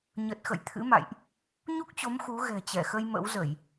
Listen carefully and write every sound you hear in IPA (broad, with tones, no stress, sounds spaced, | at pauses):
ɲ ə˨˩ t̚ x ə̰˧˨ j t̪ʰ ɨ̰˧˥ m a̰˧˨ j ʔ | ɲ u˦˥ k̚ t͡ɕ o˨˦ m x u˨˦ ɣ ɛ̤˨˩ t͡ɕ ɛ˧˩ x ə˧ j m ə̰˧˥ w z ə˧˩˨ j